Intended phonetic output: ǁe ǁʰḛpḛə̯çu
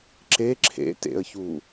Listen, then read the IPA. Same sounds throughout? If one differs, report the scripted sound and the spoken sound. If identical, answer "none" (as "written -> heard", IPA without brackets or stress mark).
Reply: p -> t